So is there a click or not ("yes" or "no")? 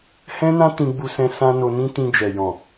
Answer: no